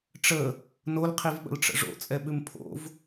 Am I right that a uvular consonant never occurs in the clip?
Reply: no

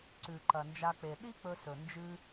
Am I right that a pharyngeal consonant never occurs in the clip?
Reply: yes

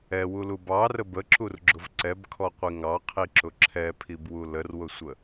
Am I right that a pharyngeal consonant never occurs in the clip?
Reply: yes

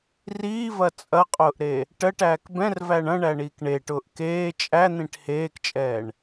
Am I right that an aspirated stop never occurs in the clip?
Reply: yes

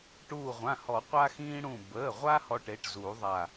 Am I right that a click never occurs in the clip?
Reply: yes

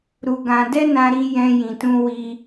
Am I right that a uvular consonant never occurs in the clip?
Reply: yes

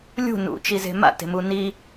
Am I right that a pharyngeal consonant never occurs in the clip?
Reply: yes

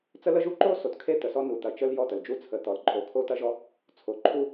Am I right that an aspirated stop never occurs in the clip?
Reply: no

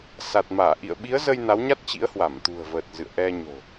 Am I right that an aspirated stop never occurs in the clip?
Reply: yes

